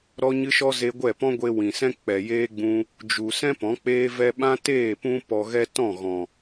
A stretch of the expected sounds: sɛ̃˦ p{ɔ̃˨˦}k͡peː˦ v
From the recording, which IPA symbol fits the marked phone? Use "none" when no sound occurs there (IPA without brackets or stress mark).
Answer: ɔ̃˨˦